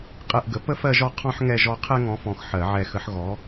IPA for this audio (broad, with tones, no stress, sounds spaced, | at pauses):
qʼ ɛ˥˨ ʔ ɡ ə˨˥ p ə˥ f ɜ˥˨ ʒ ɔ˥˨ qʰ ɔ̃˥ ħ ŋ ɛ˥˨ ʒ ɔ˥˨ qʰ ɛ˥ ŋ ɔ̃˨˥ f ɔ̃˨ x ħ ɜ˨˩˦ ʕ ɛ˨˩˦ x ə˨˥ ħ ɣ ɔ˨˥